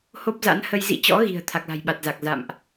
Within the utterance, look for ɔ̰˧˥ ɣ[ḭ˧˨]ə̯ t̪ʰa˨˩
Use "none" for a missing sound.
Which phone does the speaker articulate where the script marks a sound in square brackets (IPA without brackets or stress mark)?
i̤˨˩